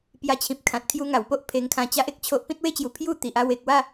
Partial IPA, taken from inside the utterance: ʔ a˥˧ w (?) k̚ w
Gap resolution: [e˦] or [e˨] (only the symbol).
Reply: e˨